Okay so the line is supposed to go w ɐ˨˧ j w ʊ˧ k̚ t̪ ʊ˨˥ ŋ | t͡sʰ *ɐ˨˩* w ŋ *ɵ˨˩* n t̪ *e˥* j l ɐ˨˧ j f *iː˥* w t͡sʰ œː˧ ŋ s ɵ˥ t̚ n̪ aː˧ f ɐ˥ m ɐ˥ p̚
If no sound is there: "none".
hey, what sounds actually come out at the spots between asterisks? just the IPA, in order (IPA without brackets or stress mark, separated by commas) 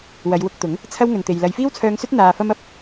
ɐ˥, ɵ˨, e˨, iː˥